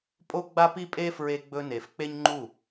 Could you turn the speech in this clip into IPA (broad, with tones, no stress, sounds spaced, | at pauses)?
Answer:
pʼ o˦ ɡ͡b a˦ p i˦ pʼ e˦ f ɹ e˧ ɡ͡b ɵ˧ n e˨ f k͡p e˦ ɲ ŋ͡ǃ u˦˨